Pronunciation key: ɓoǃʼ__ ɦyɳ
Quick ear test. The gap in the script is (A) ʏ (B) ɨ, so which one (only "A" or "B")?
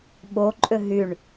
A